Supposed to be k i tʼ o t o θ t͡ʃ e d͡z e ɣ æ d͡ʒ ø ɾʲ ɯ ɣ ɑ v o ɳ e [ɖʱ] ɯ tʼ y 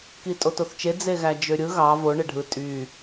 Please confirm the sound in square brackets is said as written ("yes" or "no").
yes